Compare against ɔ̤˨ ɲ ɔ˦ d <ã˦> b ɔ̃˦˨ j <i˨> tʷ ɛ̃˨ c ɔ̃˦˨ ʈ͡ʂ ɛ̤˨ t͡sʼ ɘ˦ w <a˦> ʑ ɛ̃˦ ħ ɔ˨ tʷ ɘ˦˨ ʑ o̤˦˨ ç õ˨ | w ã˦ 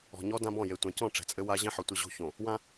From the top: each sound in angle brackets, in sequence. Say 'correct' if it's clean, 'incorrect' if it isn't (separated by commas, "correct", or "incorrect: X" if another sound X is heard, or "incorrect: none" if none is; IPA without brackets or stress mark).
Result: correct, incorrect: e˨, correct